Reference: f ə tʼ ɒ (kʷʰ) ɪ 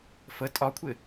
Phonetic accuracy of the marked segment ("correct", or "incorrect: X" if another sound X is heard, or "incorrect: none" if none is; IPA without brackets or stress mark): correct